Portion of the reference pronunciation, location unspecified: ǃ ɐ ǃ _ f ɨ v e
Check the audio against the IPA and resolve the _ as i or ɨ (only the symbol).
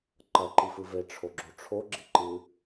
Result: i